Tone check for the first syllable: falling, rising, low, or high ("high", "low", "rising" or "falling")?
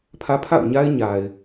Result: high